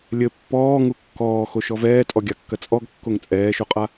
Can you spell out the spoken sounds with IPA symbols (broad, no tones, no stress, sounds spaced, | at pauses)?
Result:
lʲ ɘ pː ɔː ŋ u kː ɔː x o ʃ ɔ v ɛː tʼ ɔ ɡʲ a kː ɐ t͡sʼ ɔ ɡ kː o ŋ t͡sʼ ɛː ʃ o qʼ a